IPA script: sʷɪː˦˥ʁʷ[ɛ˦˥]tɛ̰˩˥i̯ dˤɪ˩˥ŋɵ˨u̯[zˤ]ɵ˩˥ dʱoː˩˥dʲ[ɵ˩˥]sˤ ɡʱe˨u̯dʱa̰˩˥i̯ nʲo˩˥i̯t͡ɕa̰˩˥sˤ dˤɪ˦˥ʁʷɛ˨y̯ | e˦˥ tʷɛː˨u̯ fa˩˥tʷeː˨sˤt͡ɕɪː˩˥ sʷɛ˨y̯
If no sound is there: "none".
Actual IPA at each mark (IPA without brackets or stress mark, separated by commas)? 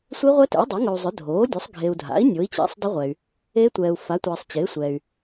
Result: ɛ˦˥, zˤ, ɵ˩˥